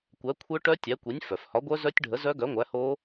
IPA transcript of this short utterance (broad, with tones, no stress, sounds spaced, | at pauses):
kʷ æ˨˥ kʷʰ œ˦˥ ʈ œ˦˥ tʲ æ˨˥ kʷ i˨˥ nʲ f œ˩ f h ɒ˨˥ ɡʷ œ˦˥ z œ˦˥ tʲ ɖʱ ə˨˥ z œ˦˥ ɡ œ˨˥ ŋʷ æ˨˥ h o˦˥